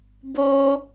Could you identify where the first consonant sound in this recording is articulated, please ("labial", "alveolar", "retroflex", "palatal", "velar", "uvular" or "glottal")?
labial